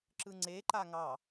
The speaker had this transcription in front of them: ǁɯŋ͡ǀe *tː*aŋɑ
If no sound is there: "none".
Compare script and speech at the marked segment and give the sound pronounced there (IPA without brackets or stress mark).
ǃ